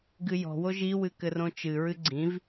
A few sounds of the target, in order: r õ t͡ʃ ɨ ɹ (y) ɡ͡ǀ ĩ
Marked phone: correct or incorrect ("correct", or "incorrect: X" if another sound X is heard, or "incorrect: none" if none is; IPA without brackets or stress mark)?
incorrect: ɨ